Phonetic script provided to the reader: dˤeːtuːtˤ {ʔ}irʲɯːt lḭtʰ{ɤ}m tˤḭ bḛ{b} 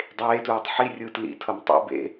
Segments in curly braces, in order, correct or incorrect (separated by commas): incorrect, correct, incorrect